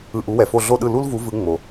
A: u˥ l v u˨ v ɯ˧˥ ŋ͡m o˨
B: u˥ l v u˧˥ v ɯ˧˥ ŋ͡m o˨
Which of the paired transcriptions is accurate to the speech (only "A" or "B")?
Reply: B